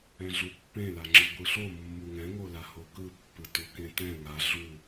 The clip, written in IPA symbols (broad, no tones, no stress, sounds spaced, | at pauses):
ɛ̃ ɮ u pː ẽ l a ŋ͡ǁ ɯ ɡʷ ɯ ɬ o mː u ŋ ɛ̃ ŋ o l a h o k ɯ pː ɯ t u k ẽ t ɛ̃ ŋ a ɮ u